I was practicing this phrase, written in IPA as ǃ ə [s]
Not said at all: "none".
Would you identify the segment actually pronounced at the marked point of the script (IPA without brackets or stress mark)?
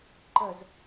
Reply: z